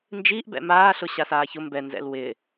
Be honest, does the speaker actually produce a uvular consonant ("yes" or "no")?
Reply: no